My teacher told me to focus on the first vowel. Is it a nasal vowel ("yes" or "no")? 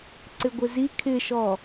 no